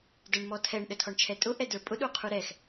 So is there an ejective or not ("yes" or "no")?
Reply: yes